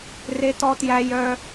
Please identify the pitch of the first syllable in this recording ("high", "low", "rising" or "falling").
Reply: high